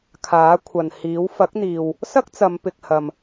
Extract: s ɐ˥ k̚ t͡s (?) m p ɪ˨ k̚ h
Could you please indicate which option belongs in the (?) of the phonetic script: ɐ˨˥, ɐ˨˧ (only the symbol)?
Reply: ɐ˨˧